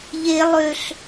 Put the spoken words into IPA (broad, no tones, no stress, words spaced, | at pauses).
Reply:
ʎe lˠøɬ